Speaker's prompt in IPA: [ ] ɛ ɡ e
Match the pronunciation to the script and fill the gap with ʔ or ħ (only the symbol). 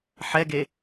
ħ